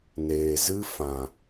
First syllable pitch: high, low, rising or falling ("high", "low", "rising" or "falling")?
low